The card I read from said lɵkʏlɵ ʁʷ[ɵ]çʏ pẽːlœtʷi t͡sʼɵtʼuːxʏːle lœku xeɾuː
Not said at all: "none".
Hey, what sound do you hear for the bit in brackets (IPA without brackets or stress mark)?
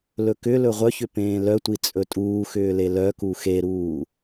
œ